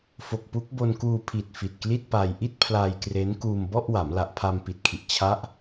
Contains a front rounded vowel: no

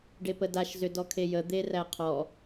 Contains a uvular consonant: yes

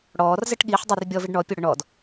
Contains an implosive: yes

